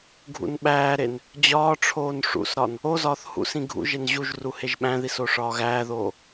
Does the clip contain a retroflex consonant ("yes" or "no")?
yes